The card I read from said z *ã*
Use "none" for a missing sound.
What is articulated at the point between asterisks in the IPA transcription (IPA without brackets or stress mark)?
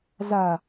a